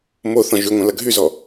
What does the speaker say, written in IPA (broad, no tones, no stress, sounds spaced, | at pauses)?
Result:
m o θ ɔ̃ ʒ y ŋʷ ɐ̃ l ɐ ɡʱ y z ɔ